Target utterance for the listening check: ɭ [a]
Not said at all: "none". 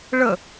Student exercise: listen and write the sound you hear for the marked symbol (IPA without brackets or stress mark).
ə